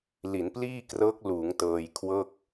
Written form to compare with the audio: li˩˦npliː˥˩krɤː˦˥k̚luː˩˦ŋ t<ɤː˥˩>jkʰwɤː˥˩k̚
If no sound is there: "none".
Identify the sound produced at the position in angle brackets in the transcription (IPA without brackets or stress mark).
ɤː˧